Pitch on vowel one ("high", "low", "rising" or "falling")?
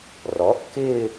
rising